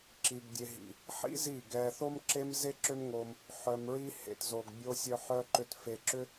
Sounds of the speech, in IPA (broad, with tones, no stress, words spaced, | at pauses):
ǁi˨ɡ dʲe˨ ɦḭ˨ | ħḭ˦ zi˦˨ɡɛ˧ θo˦mǁe˦mze˦ǁʏ˦m ŋo˧m | ħœ˨mɹi˧hḛ˨t zo˨ɡ bʲo˦sʲœ˦ ħœ˦ǃʏ˦t fe˧ǁʏ˦